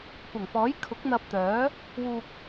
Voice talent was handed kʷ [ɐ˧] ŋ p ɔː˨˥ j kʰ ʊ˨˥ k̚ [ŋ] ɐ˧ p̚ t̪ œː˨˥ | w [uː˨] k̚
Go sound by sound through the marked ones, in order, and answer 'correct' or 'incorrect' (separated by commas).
incorrect, incorrect, correct